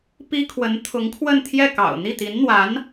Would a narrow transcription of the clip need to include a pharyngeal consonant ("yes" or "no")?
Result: no